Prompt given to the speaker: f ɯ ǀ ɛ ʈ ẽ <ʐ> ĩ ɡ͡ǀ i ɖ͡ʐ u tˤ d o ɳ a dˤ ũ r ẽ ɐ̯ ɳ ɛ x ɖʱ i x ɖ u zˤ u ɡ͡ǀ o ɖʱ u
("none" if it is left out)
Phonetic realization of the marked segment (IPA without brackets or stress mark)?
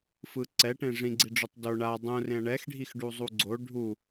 ʐ